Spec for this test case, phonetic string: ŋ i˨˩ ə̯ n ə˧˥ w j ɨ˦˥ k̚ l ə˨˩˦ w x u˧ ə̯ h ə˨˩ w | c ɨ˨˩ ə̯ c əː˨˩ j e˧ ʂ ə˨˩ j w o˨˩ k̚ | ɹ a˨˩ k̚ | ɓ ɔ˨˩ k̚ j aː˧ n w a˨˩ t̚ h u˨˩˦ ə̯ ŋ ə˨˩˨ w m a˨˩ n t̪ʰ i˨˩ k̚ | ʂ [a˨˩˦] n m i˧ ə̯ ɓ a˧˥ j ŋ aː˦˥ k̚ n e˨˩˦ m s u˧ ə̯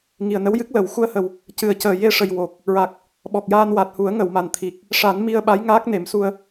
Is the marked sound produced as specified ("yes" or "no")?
yes